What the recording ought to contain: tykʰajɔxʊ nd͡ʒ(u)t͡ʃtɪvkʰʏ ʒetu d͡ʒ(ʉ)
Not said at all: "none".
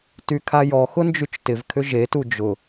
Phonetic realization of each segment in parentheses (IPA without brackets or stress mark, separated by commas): y, ʊ